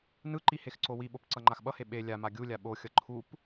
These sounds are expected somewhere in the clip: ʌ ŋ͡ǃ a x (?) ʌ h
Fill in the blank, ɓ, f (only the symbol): ɓ